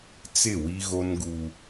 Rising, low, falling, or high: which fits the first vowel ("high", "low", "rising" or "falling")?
falling